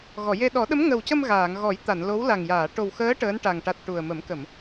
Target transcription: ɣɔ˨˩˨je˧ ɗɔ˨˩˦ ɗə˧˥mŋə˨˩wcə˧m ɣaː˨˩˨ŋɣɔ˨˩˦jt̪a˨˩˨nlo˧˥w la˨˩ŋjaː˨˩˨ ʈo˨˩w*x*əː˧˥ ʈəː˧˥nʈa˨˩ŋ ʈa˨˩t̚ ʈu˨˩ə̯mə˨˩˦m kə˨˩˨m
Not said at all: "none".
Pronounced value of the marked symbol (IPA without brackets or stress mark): x